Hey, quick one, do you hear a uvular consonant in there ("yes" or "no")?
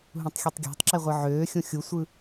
yes